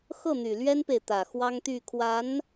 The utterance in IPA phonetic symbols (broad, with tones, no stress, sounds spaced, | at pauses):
x ɤ˥˩ n̪ y˨˩ l ɥ ɛ˥ n p e˨ ɪ̯ t̪ ä˨˩ x w ɑ˥ ŋ t̪ y˥˩ kʰ w a˧˥ n